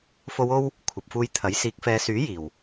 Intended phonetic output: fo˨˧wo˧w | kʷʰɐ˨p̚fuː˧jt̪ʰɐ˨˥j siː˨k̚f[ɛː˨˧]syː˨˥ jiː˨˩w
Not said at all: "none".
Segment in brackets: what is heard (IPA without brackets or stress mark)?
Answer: ɛː˨˧